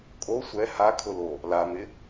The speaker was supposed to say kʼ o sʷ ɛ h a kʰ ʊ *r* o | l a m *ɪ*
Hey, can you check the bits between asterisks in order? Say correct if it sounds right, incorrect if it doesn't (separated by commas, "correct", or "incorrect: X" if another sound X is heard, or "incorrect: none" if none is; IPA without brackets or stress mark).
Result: incorrect: l, correct